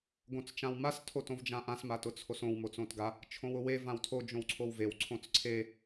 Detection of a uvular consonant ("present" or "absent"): absent